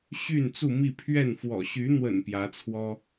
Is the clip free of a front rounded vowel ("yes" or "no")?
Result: no